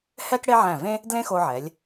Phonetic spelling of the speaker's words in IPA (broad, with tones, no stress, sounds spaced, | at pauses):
h ɛ˥ k ɽ e˥ ʕ æ̃˧˩ v ẽ˥ | d l ẽ˥ x o˧ ʕ ɛ˩˧ lʲ